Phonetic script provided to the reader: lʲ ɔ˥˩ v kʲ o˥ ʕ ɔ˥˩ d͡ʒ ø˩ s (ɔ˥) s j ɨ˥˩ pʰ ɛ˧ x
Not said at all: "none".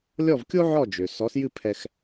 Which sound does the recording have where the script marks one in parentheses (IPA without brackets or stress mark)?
ɔ˩˥